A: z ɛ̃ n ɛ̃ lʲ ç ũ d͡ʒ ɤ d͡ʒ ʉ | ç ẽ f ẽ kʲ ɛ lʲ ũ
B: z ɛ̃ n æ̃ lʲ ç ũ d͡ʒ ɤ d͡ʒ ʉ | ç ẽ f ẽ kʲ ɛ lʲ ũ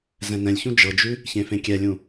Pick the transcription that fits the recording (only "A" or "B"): A